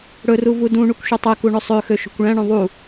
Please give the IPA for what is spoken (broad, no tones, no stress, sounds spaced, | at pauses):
ɽ ɵ r u v u d ũ ɳ u kʷ ʃ u tˤ ɛ k u ɳ ɵ sˤ ø x ø ʃ o̤ kʷ ɭ æ̃ ɳ õ ðˤ u